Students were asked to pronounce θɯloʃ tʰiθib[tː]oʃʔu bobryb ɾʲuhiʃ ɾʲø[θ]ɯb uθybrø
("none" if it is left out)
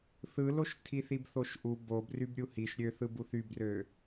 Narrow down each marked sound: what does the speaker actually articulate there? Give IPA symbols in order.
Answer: θ, θ

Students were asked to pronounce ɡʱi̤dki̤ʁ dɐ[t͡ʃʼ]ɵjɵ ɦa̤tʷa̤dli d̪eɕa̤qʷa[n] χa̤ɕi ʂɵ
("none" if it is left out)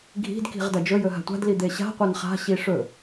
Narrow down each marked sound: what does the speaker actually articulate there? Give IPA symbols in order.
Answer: d͡ʒ, n

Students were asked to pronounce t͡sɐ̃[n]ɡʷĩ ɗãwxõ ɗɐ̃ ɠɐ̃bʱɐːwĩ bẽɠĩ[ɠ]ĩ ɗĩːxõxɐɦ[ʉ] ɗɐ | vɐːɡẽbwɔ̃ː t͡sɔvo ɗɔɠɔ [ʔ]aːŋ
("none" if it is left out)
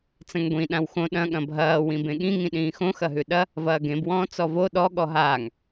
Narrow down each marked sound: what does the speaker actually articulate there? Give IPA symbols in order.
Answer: ŋ, ŋ, ʉ, ɦ

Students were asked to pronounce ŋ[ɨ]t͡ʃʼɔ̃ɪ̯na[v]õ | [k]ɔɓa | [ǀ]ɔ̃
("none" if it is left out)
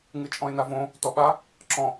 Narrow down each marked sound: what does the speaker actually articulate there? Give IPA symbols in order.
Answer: ɨ, v, t, ǁ

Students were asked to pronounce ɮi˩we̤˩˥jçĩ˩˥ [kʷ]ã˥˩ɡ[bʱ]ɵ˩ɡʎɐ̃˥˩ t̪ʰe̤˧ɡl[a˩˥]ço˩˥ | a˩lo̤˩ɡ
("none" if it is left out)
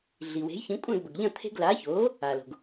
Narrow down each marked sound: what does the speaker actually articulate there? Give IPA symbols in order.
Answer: kʷʼ, b, a˩˥

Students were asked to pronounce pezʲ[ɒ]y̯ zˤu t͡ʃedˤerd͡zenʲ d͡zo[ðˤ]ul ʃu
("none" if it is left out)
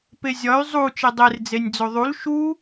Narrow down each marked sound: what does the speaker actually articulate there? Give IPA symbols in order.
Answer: ɒ, ðˤ

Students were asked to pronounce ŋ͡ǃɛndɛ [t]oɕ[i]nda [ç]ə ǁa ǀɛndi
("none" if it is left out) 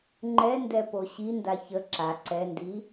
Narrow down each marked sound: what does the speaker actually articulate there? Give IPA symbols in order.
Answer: p, i, ç

